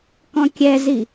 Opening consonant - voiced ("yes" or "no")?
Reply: no